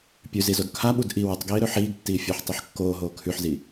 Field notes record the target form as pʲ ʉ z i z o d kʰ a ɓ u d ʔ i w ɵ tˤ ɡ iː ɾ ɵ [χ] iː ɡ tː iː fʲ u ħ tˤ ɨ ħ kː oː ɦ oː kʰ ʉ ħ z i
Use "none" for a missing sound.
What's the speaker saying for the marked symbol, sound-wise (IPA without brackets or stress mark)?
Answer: ħ